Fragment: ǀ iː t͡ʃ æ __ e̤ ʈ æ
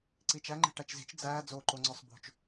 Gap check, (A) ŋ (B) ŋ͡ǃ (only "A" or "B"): B